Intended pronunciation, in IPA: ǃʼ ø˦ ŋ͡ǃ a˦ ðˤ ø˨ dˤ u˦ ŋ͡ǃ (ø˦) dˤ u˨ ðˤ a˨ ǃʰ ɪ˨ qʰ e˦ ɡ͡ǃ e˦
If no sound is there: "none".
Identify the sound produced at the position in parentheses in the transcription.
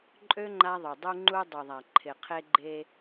u˦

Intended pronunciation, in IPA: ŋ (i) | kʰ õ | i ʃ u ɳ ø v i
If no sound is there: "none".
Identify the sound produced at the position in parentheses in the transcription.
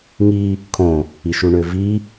i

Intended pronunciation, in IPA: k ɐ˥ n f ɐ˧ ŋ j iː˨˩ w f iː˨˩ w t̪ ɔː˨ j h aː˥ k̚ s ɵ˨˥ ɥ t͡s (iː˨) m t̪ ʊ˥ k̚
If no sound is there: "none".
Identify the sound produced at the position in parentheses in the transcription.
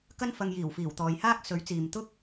iː˨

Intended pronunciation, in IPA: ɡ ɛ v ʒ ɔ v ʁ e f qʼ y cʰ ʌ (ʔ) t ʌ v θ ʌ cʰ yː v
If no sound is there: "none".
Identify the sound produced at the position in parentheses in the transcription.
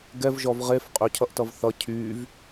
ʔ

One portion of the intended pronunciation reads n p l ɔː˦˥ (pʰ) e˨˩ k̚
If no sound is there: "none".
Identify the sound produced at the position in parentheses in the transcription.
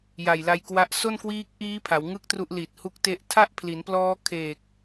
kʰ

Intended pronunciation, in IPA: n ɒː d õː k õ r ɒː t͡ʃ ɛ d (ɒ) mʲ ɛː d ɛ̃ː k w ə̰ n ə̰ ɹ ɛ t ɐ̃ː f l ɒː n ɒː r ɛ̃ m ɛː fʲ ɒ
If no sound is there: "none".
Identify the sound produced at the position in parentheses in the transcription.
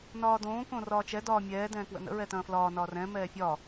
ɒː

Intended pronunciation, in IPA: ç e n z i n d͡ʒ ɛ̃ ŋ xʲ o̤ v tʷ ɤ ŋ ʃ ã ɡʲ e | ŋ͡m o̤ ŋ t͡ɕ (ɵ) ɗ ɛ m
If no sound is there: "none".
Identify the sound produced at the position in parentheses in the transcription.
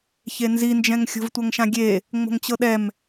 ɤ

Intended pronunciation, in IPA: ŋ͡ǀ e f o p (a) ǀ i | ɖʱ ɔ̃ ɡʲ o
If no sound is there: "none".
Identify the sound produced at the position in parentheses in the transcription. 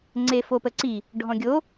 ə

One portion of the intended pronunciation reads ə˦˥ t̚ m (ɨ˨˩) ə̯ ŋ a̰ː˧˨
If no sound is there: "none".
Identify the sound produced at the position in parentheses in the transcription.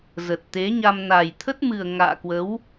ɨ˨˩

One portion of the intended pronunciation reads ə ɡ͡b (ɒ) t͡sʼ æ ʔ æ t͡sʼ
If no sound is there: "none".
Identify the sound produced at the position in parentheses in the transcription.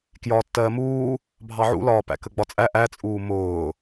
ɒ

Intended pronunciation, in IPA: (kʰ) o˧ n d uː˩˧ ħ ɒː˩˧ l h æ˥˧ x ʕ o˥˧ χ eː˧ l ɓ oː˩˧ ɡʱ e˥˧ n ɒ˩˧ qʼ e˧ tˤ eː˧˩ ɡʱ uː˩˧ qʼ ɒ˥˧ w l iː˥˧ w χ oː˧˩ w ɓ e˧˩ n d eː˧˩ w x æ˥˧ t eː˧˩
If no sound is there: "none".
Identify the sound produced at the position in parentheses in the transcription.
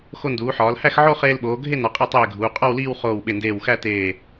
x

